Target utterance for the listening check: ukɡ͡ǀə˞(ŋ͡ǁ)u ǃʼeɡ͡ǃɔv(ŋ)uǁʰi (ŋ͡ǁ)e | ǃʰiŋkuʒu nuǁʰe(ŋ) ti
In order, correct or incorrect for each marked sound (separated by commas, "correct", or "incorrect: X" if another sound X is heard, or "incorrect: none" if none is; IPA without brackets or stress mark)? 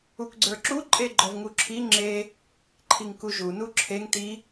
incorrect: ǁ, correct, correct, correct